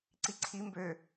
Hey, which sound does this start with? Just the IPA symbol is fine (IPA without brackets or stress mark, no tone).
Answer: ǀ